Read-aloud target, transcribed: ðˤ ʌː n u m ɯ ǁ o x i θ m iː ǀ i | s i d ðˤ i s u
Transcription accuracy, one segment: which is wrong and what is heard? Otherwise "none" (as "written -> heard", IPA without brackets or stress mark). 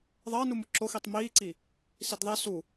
θ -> tˤ